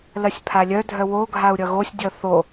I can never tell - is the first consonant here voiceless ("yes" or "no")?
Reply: no